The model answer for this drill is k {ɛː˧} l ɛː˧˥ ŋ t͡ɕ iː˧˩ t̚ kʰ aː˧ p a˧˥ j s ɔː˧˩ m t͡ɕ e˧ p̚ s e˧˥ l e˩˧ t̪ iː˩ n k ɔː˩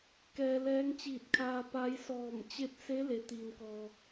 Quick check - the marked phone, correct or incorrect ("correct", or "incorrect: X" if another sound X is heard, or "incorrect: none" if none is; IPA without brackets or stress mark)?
correct